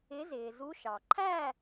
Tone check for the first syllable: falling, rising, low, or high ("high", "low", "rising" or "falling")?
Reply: rising